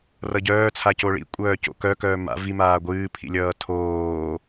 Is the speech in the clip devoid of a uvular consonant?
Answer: yes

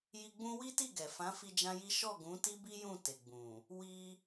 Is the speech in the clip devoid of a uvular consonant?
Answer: yes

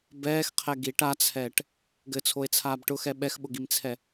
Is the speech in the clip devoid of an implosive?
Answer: no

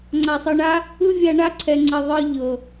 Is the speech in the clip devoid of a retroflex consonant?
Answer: no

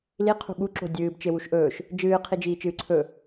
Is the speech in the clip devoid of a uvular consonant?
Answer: no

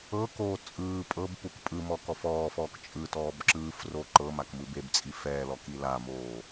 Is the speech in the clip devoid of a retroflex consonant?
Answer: yes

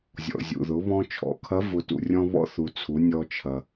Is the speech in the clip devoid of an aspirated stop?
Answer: no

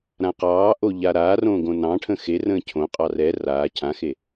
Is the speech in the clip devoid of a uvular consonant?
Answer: no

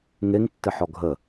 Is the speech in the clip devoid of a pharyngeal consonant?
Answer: no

